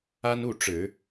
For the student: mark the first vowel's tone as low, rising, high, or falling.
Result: high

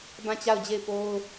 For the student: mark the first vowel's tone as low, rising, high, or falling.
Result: falling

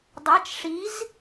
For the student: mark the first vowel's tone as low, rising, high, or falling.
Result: rising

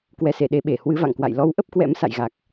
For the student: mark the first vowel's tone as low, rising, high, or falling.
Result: rising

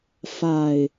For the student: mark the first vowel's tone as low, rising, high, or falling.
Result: falling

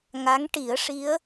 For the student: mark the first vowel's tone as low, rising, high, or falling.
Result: rising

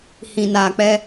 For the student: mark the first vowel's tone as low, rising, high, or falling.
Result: low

